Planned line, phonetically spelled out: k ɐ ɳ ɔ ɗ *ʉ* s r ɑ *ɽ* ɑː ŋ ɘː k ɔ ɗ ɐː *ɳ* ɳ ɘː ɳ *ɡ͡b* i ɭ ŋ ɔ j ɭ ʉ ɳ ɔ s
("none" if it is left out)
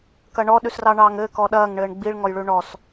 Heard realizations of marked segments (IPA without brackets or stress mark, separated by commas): ʉ, ɳ, ŋ, ɡ͡b